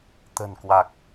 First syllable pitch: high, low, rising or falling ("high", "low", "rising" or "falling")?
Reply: low